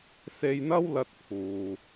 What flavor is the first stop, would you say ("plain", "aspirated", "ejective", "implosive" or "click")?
plain